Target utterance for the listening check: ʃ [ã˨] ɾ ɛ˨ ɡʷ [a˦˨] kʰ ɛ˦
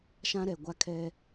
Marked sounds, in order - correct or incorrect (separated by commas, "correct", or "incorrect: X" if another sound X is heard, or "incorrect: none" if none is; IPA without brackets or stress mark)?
incorrect: ã˦, incorrect: a˦